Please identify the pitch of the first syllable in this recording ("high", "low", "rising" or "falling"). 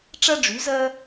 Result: high